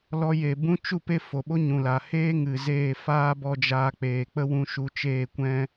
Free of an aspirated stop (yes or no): yes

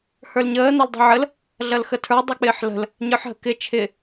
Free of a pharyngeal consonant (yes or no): no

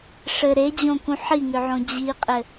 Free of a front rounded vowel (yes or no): no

